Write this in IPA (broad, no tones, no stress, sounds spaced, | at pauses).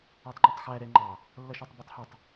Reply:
æ tˤ ŋ͡ǃ ɛ tˤ x æ ɾ ɛ ŋ͡ǃ ɑ | lː ʌ ʃ æ tˤ b ʌ tˤ h ɛ tˤ